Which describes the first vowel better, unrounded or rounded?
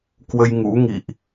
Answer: unrounded